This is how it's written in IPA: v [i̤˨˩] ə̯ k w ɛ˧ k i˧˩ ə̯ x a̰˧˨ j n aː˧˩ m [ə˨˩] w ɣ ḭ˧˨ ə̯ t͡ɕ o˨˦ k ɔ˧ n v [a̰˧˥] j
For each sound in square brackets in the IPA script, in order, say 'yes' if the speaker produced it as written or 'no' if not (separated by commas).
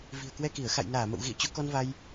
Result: yes, no, no